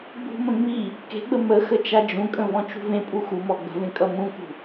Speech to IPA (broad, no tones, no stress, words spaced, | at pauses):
ɡ͡bṳmə̃ ŋ͡mi | ke̤ɡ͡bə mə xət͡ʃad͡ʒũkʼə̃ vɔ̃t͡ʃṳvẽpʼu xumɔ ɡ͡bə̤vẽ kʼʌmũkṳ